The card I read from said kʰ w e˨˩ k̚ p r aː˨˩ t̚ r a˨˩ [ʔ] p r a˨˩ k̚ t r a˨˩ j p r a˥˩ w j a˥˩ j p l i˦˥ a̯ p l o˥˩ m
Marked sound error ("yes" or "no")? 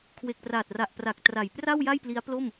no